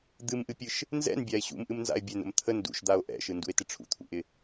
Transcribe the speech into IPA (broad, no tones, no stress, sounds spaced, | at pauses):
d̪ ɨ m ʔ ɨ pʲ ɯ ʃ | n z ɛ̰ n bʲ a e̯ ɕ ṵ m ʔ ɨ m n z a̰ e̯ bʲ ɛ n ə̰ m t̪ʰ ə n d ṵ ʃ d̪ a o̯ ʔ ɛ̰ ʃ ɯ n d ṵ e̯ t ɪ ʈ͡ʂʰ ṵ t̪ʰ ṵ ʔ ɪ